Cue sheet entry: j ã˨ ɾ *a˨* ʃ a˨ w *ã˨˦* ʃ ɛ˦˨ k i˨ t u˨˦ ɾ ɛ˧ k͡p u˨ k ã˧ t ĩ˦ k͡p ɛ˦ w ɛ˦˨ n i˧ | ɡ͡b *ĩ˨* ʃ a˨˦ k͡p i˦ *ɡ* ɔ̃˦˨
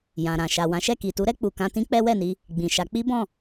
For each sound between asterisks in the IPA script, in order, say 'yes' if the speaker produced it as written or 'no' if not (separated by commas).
no, yes, yes, no